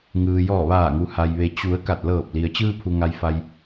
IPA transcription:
ŋ ɯː˩ j ɔː˧˩ ʋ aː˧˩ ŋ u˩ h a˩ j ʋ e˩ t͡ɕ u˩˧ ə̯ k a˧˩ t̚ l ɤː˧˩ p̚ l i˩ ə̯ t͡ɕ ɯː˧ pʰ u˩ ŋ a˩ j f a˩ j

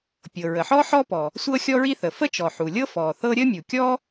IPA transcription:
pʲ ɤ˩ ɹ ə˩ ħ ɔ˥ ħ ɔ˥ p ɔ˩ | sʷ ɤ˥ xʲ ɔ˥ ɹ i˥ θ ə˩ f ə˥ t͡ʃ ɔ˩ ħ u˩ lʲ ɤ˥ f ɔ˩ θ ɤ˥ ɾʲ ə˥ mʲ u˩ kʲ ɔ˥

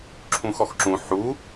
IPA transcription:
ǁʰ ũ x ɔ x ǁ ũ ħ u

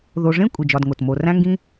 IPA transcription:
ð o˨ ʐ ẽ˥ kʷʼ i˩ d͡ʒ ɒ˨ d ŋ o˩ t m o˨ r æ̃˦ ŋ ɡ ĩ˦

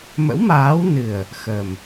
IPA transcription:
m ə̰˧˥ w m aː˨˦ w n ɨ˨˩ ə̯ | x ə˨˩ m

